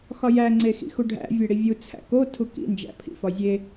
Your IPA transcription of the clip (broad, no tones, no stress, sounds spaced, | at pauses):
x ɒ j æ ŋ͡ǀ e x ḭ x u ɖʱ æ̰ vʲ e ɽ i vʲ u t͡sʰ æ̰ k o tʰ u k ḭ n d͡ʒ æ̰ pʰ ḭ f ɒ zʲ e